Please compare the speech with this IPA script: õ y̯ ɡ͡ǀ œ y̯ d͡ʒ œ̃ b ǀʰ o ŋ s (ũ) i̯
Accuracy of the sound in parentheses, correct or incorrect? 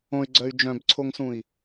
correct